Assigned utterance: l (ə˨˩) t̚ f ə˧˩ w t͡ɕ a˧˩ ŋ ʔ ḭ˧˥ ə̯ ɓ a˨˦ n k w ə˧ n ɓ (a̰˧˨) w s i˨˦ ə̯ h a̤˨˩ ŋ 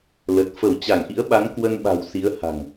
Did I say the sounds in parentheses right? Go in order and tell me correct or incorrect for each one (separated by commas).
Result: correct, incorrect